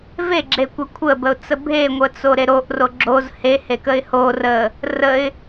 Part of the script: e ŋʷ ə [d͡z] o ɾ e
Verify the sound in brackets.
incorrect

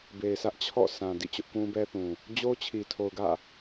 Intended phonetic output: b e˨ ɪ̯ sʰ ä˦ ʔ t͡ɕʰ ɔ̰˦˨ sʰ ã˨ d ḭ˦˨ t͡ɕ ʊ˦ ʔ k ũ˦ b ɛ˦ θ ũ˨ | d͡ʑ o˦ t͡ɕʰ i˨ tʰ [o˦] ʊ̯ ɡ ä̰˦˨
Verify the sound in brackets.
incorrect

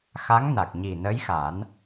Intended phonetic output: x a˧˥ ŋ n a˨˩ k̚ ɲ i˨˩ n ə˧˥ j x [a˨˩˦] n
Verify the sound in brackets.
correct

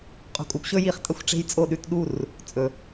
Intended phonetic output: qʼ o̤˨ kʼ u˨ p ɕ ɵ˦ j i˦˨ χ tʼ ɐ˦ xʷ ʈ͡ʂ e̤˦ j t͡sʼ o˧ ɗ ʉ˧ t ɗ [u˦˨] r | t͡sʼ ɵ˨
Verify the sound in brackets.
correct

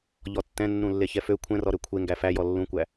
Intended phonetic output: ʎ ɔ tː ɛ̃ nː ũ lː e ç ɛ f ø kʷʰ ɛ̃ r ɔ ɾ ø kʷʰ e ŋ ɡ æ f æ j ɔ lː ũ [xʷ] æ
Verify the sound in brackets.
incorrect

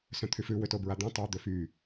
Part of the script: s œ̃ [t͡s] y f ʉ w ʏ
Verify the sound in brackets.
incorrect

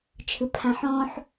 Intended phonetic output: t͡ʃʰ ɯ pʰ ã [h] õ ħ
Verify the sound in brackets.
incorrect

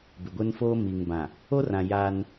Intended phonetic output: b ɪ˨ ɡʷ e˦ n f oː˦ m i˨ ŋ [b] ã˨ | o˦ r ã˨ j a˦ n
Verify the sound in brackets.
correct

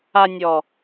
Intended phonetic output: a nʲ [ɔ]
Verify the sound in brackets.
correct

